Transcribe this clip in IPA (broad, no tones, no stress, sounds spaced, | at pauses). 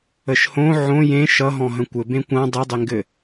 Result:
ə ʃ h õ ʕ õ j ẽ ʃ ʌ ɦ ɔ̃ ɦ ə̃ kʷ ɘ b ẽ kʷ ã dˤ e dˤ e ŋ ɡ ɘ